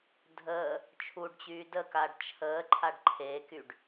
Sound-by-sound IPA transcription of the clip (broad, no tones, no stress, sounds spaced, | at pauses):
dʱ əː | t͡ʃʰ u ɖ t͡ɕ yː d ə k a ɖ t͡ʃʰ əː ǃʰ a ɖ ǃʰ e k y ɖ